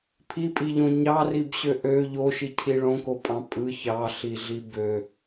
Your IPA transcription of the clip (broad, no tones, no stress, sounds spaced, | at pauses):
pʰ i pʼ i ʎ õ ɲ ɑ r i b ɕ ø ʔ ø ʎ o ʃ i cʰ i ɭ õ k o pʼ ɑ̃ pʼ ɯ ç ɑ ɬ i ɮ i b ø